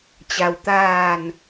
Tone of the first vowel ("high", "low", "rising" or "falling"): low